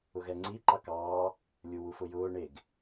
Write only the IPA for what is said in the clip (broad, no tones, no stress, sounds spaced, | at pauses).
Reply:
ʊ ɣ ɛ ŋ͡ǀ i ǃ ɑ k ɑː | lʲ u w u f ʊ j ʊː ɳ e ɡ